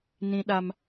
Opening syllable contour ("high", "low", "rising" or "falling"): high